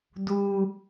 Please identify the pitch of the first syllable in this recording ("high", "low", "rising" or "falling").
high